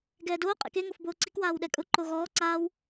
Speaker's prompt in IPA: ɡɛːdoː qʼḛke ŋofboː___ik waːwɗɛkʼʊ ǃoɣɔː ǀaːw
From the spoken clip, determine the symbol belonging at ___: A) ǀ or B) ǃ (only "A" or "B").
A